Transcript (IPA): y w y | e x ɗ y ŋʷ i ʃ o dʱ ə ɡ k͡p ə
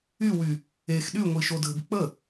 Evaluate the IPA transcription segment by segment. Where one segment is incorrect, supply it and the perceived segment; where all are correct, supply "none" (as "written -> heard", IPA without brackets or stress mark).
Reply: none